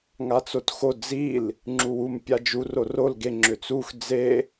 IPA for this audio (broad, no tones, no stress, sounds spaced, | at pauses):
ŋ a t͡s o t x o d͡z i l | ŋ͡ǁ u w u m pʲ a d͡ʒ u r o r o l ɡ e ŋ͡ǁ ʏ t͡s u x d͡z e